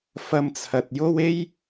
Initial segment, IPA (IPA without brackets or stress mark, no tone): f